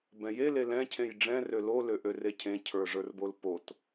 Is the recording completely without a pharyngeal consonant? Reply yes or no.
yes